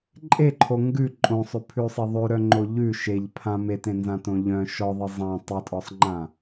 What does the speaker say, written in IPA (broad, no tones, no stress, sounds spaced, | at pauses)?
ǃʼ e ǃʰ o ŋ ɡ ʉ ǃʼ õ sˤ ʉ pʰ ʉ sˤ e ðˤ ʉ ɾ œ ŋ͡ǃ o ʎ ʉ ʃ e ʎ pʰ ã m e t ẽ n z ã t õ ʎ œ̃ ʃ ɔ ðˤ ɨ zˤ ã tˤ ɨ tʼ ɔ sˤ ŋ͡ǃ ã